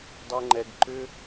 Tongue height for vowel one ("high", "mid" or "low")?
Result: mid